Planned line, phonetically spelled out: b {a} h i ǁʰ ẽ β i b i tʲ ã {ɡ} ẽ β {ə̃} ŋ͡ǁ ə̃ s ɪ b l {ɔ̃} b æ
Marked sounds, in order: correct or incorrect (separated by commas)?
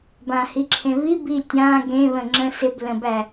incorrect, correct, correct, incorrect